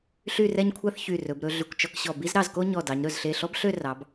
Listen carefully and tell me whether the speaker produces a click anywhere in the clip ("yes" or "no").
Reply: no